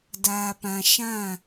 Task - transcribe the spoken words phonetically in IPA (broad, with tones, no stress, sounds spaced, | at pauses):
d aː˨ p ã˨ ʃ ã˦˨